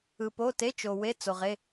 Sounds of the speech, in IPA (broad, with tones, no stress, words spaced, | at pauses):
ɯ˨po˧˥˧ te˧˥˧t͡ʃo˨ we˧˥˧t͡so˨ ʁe˧˥˧